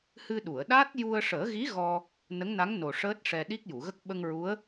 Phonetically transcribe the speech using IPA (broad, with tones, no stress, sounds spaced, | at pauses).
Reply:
h ɨ˧ ɗ u˨˩˨ ə̯ ɗ aː˦˥ t̚ j u˧ ə̯ ʂ əː˨˩˦ ɣ i˧˥ ɣ ɔ˧ | n ə˧˥ ŋ n a˧˥ ŋ n o˨˩ ʂ əː˦˥ t̚ ʂ ɛ˧ ɗ i˦˥ k̚ j u˨˩˨ ɣ ə˦˥ k̚ ɓ ə˧ ŋ ɹ u˧˥ ə̯